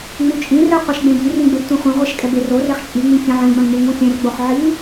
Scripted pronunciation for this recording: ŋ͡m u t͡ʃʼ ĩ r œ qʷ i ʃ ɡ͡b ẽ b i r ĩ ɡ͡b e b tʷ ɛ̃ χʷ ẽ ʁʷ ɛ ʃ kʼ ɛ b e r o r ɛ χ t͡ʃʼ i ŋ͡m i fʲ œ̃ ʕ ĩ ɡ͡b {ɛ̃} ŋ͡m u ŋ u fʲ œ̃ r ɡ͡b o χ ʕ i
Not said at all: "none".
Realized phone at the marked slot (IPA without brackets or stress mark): œ̃